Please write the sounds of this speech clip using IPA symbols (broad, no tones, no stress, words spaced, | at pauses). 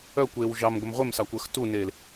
œkʷeːw ʒɑmɡʷəm ʁʷemsɑkʷəːx tuneːl